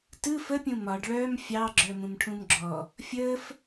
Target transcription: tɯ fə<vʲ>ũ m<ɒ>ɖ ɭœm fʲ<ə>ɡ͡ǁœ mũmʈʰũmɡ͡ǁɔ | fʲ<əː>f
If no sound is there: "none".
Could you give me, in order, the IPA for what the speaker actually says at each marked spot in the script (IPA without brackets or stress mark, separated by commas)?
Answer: pʲ, ɒ, ɑ, əː